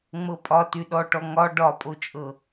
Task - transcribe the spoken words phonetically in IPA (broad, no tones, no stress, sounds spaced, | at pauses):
ŋ͡m ɤ pʼ ɒ t y ɗ ɔ ʈ ɔ ŋ ɒ ɖ ɒ pʼ o t͡ʃʼ ɤ